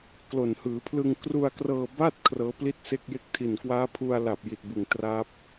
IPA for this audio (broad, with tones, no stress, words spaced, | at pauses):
klo˨˩nhɯː˩˦pʰlɯ˧ŋ kru˧a̯krɤː˧ ba˥˩t̚ kʰrɤː˦˥pli˥˩t̚se˥˩k̚je˥˩k̚ tʰi˨˩nkwaː˦˥ pʰu˧a̯la˨˩p̚ ji˨˩t̚bɯ˨˩ŋ tra˦˥p̚